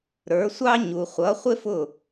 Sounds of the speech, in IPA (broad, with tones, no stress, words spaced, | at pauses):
ɾə˞˩˥sʷɑ˥ ɲu˩˧χʷʌ˩˥ χʷɪ˥fʊ˥˩